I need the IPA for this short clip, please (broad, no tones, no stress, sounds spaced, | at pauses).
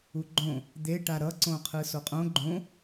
u ɡ͡ǃ õ | d̪ e ʈ a ɾ ʌ ǀ õ qʰ ɯ s o qʼ õ ɡ͡ǃ õ